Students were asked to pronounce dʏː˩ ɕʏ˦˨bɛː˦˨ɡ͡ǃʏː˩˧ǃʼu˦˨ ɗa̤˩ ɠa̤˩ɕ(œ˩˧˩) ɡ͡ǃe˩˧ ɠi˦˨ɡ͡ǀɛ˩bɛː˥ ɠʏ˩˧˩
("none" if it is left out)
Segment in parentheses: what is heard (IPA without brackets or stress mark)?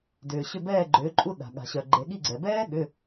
œ˩